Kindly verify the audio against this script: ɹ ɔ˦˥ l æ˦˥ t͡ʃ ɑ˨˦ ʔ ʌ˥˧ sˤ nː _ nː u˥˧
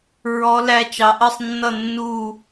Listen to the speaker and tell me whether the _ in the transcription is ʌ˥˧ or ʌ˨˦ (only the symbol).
ʌ˥˧